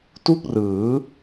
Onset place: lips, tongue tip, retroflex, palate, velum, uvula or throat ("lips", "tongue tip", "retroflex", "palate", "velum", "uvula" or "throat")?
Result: tongue tip